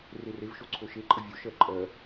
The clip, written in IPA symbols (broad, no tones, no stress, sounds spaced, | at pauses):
r e r e v ʃ o ǀʰ o ʃ e ǃʼ ə vʲ o ʃ ɜ ǃʼ ɜ